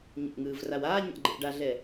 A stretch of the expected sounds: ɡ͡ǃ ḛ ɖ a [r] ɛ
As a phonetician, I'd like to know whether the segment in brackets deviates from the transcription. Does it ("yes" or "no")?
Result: yes